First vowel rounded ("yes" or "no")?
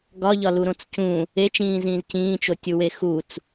yes